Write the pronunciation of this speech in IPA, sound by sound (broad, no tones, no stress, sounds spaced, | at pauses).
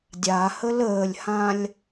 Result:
dʲ a h ə l əː lʲ h ã lʲ